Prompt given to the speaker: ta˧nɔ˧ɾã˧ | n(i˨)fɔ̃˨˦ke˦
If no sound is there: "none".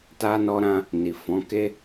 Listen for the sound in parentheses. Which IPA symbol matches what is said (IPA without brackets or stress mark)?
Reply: i˨